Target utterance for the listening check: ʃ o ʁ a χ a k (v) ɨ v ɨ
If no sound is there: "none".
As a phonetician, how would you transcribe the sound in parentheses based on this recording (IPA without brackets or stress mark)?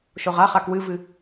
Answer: w